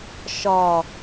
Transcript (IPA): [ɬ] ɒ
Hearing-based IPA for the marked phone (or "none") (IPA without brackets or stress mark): ʃ